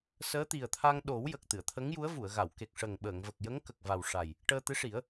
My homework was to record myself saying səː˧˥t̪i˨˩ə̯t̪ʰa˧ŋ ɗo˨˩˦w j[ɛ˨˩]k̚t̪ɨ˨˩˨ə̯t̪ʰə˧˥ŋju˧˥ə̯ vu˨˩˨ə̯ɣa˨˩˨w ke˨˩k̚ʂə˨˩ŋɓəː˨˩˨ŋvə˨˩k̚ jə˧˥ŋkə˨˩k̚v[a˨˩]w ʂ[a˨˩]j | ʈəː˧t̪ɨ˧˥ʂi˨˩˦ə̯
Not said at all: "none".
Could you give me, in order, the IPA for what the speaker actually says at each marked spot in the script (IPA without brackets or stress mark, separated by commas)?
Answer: ə˨˩, a˨˩, a˨˩